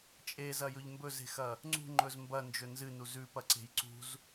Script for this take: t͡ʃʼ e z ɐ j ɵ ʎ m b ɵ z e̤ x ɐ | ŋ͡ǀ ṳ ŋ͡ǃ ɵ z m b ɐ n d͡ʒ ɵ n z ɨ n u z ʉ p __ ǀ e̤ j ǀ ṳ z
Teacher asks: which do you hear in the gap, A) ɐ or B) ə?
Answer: A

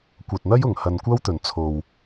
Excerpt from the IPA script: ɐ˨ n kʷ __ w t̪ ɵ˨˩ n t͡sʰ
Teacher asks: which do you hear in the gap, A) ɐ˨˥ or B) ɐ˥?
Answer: B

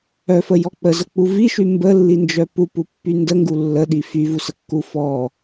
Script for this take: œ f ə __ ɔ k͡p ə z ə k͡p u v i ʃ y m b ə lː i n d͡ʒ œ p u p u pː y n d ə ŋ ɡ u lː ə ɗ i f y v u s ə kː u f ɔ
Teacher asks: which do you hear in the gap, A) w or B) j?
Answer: B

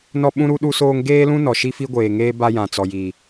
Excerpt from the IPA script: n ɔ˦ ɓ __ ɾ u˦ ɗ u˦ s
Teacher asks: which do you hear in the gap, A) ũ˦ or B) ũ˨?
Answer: A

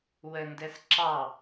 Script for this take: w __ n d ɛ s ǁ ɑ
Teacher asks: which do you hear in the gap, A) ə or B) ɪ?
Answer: A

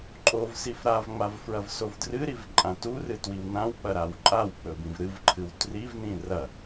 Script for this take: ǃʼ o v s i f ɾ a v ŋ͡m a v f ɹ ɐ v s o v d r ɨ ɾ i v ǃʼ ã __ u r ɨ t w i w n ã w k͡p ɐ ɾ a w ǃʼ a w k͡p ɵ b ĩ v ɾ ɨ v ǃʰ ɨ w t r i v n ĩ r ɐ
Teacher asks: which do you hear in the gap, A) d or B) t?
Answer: B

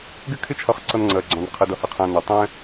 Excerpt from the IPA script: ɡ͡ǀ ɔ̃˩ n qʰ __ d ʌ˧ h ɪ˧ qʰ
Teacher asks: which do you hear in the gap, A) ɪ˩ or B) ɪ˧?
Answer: B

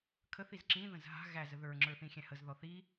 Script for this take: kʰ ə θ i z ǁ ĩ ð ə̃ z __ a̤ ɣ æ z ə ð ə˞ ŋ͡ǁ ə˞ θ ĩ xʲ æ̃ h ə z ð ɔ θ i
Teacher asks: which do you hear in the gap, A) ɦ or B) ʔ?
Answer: A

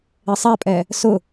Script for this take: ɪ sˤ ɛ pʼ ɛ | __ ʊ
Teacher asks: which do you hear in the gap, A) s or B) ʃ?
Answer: A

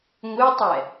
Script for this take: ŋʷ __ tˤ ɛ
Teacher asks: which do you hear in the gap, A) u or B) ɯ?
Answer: B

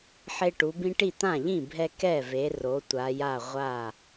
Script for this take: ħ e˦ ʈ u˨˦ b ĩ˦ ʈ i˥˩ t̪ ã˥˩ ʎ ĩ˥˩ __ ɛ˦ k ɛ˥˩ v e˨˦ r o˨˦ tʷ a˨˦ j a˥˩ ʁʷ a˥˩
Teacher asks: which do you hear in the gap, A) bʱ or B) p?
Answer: A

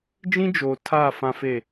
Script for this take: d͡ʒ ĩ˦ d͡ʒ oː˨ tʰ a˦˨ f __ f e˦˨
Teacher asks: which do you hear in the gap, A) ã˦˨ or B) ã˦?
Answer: B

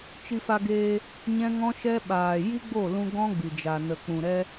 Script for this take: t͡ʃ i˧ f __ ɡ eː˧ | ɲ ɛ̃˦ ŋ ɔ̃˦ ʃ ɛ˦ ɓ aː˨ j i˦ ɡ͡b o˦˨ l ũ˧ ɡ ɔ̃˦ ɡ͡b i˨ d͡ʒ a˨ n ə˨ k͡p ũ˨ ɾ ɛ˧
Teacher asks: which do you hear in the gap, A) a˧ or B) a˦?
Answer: A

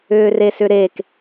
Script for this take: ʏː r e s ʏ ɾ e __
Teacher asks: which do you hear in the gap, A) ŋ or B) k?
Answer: B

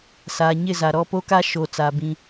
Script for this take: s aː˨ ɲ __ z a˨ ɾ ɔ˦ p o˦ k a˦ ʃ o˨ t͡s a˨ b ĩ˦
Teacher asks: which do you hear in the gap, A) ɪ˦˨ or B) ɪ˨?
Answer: A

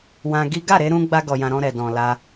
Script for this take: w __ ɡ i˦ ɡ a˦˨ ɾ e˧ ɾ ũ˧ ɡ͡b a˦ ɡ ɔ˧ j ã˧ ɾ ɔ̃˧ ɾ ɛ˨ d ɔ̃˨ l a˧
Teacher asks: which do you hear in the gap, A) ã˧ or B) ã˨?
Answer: A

